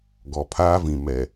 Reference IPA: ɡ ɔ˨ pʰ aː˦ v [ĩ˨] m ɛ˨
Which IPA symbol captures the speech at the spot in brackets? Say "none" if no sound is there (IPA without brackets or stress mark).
ĩ˨